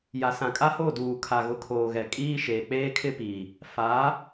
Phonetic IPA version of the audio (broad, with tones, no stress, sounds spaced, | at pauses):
j a˨ s ã˨ kʼ a˦ h o˦˨ d uː˨ kʰ a˨ ɣ ʊ˨ kʰ oː˨ ɣ ɛ˨ kʼ iː˦ ʃ eː˨ k͡p eː˦ kʰ ɪ˦ p i˨ | f a˨˦